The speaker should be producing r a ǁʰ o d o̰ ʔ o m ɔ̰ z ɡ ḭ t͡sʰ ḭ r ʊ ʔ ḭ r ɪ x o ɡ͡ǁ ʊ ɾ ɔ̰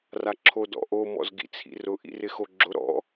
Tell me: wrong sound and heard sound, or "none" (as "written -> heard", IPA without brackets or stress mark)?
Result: o̰ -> ɔ̰